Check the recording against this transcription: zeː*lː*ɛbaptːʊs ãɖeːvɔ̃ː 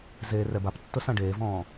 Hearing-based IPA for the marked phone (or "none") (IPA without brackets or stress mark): r